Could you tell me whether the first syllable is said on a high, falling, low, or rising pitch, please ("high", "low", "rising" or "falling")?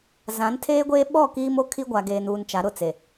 rising